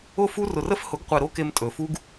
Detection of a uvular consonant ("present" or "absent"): present